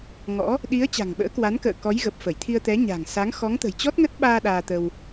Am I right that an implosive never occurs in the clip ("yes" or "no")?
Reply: no